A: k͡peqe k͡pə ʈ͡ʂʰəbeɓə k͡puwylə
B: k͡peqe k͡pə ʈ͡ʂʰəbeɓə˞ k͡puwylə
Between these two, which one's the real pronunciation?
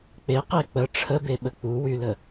A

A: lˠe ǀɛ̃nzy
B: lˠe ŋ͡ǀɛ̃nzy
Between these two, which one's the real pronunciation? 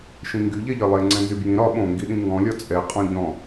B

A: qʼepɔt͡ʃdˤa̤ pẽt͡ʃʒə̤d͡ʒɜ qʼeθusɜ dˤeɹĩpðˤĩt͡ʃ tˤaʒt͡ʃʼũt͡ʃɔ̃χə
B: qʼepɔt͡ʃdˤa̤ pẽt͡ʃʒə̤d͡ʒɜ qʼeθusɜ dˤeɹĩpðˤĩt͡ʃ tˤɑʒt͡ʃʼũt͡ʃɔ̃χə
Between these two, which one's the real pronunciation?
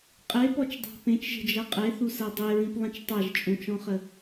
A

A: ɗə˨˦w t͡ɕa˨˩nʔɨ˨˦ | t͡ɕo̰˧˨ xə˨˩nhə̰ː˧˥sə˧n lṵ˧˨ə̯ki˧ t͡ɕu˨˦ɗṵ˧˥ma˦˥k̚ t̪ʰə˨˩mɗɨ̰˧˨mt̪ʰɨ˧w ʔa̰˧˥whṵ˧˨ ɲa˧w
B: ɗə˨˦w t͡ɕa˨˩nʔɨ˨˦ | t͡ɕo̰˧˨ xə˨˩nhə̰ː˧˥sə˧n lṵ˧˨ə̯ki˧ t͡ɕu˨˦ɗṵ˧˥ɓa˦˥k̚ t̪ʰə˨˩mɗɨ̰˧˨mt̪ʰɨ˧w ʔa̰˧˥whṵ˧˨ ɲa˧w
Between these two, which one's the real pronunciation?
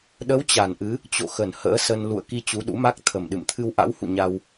A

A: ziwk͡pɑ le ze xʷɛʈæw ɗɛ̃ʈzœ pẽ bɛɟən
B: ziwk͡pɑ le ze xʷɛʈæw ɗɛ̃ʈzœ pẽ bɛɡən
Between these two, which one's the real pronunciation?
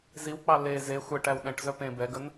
B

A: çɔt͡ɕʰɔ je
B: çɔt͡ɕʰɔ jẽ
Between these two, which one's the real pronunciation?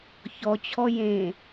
B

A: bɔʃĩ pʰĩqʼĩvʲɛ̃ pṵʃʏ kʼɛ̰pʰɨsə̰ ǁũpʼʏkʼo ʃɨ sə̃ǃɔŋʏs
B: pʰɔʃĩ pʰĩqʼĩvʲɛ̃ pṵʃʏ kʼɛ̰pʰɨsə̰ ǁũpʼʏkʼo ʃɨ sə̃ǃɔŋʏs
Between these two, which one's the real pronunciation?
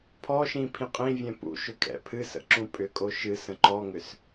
B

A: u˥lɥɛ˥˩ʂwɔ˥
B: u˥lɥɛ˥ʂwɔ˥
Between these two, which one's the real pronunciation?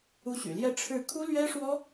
B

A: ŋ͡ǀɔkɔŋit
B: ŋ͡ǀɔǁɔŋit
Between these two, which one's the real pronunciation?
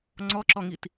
B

